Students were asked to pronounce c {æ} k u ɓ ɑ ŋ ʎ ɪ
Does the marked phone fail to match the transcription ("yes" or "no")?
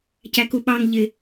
no